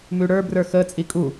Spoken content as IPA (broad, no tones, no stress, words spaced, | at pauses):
mʉɽə˞brə˞ xət͡sʼi kʼu